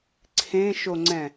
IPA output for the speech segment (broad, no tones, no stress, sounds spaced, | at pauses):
ǀʰ ẽ ʃ o ŋ͡ǀ ɛ̃